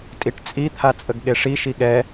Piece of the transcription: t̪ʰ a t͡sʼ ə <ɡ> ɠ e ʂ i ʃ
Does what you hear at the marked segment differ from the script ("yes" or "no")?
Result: no